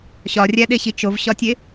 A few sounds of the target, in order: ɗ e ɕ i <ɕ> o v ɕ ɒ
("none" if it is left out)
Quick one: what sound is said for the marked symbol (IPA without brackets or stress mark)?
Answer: t͡ʃ